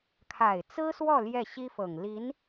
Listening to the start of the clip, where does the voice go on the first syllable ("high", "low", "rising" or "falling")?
low